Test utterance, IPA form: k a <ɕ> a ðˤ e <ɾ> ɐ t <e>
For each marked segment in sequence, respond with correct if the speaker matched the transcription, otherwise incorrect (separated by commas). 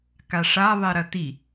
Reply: incorrect, correct, incorrect